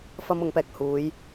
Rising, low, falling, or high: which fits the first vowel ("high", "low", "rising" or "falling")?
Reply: high